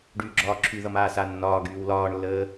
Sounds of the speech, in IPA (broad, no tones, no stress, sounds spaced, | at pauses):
ɖ yː ɡ͡ǁ ɒː ǁʰ y ð ʌ m aː s a nː ɒː ɡ yː w l ɒː ɳ lː əː